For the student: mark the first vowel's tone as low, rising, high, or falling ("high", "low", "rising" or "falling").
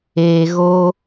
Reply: low